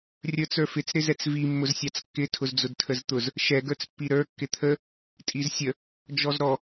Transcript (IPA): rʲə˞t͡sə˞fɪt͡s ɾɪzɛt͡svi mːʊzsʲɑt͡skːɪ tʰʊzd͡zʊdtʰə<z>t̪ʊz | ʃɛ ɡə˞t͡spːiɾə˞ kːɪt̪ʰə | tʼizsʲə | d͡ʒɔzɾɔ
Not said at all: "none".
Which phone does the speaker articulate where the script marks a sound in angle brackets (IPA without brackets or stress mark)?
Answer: z